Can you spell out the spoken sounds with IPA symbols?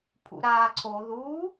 pʰ ṵ ɾ aː ǀʰ o ð u

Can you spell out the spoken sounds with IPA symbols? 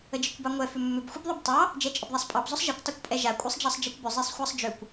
ə d͡ʒ e kʷ b ɑ ŋʷ ɛ f ʏ mː ʏ b xʷ e b ðˤ ʏ b tˤ ɑ | d͡ʒ ɛ t͡ʃʼ ə b ðˤ a sˤ pʼ ɑ b z ʊ sˤ ʒ ɛ kʷ tˤ e kʷ pʼ ɛ ʒ a kʷʼ e sˤ d͡ʒ ɑ sˤ d͡ʒ ɑ kʷ b ʏ zˤ e sˤ xʷ ɑ sˤ d͡ʒ ʏ kʷ

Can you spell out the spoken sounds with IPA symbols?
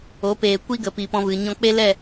o˨˦ p eː˨ kʷ i˦ ɡ ə˨ p i˨ p ɔ̃˧ v ɨ˨ ɲ ɔ̃˧ k͡p e˦ l ɛ˦˨

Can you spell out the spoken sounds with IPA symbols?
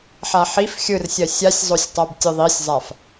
ħ a ħ i f xʲ ɯ r sʲ ɜ sʲ a sʲ zˤ o sʲ tˤ a b tʲ ɯ ðˤ i sʲ zˤ a f

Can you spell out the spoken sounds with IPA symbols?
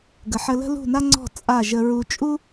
ɡ ə˨ ħ ə˧ l ə̤˦ l ṳ˦˨ n a˦ ŋ͡ǀ ɔ̤˦˨ t͡sʼ a˦˨ ʒ ə˧ ɹ u˧ t͡ʃʼ u˦

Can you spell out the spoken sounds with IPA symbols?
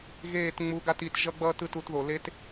ɣ eː˦˨ t ŋ͡m u˧ ɡ a˦ t i˧ t ʒ ʌ˦ ɡ͡b ʌː˦ t ɯ˨˦ t u˧ t ð o˨ l e˦ t

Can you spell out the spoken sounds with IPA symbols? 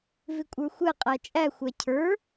v ɪ kʷʼ ə˞ xʷ ɛ qʼ æ t͡ʃʼ æ xʷ æ cʰ ə˞

